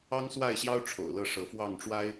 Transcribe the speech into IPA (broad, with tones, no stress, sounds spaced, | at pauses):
ɑ˦ ŋ s w a˥˨ ɪ̯ ɕ j ɑ˦ ʊ̯ ʈ͡ʂʰ o̰˨˩ ʊ̯ l ɤ˥˨ ʂ ɤ˨˦ f w ɑ˥˨ ŋ ʈ͡ʂ w a˦ ɪ̯